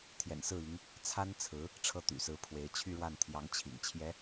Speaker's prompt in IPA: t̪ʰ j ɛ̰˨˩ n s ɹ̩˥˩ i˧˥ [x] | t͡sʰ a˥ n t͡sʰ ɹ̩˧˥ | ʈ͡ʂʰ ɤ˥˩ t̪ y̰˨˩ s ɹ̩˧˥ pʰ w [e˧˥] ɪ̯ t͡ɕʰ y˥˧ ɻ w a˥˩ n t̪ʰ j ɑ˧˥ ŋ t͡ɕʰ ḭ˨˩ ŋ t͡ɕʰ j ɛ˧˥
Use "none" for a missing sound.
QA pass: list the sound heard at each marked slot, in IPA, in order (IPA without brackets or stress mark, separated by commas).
ŋ, e˧˥